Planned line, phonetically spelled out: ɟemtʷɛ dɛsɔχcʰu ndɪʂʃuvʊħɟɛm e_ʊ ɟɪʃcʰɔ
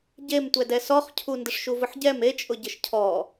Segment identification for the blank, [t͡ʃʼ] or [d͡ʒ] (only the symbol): t͡ʃʼ